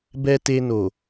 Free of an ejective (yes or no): yes